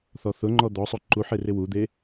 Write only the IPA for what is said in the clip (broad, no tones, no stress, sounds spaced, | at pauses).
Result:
θ ɔ θ ʊ ŋ͡ǃ ɔ d̪ ɔ sˤ o ǃ u ħ e r ɪ w u d̪ e